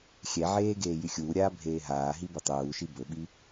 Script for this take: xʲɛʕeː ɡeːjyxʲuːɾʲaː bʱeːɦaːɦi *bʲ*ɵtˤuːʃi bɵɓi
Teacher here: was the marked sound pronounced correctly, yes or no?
no